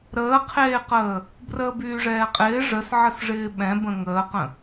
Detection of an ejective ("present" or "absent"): present